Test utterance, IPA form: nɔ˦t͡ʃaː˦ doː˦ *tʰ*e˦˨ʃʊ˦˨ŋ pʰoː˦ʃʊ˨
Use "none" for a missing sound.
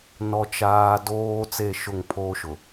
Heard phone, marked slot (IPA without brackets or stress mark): t͡s